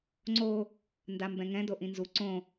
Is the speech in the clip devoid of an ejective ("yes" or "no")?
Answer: yes